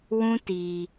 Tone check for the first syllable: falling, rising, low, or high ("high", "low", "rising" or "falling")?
high